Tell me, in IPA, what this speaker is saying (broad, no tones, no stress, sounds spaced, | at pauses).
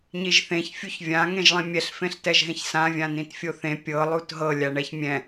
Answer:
ɲ i ʒ θ ẽ ç fʲ u ç vʲ ã ŋ ẽ ʒ lˠ ĩ mʲ ɛ ɬ f ẽ ɬ t ɛ ʒ ɦ ẽ ç s ã vʲ ã n ĩ t fʲ o θ ẽ pʲ ɤ lˠ u t ɦ ɤ lʲ a ɳ ɛ ç mʲ ɛ̃